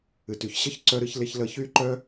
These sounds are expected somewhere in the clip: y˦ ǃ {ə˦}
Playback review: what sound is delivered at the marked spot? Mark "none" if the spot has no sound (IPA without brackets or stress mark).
œ˦